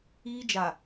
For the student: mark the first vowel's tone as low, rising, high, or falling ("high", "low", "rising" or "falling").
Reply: high